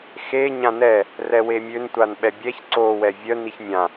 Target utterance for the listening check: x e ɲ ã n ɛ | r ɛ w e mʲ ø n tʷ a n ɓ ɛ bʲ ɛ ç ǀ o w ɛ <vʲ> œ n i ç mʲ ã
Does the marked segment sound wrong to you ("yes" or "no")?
no